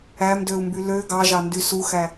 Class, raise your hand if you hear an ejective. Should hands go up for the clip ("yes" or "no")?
no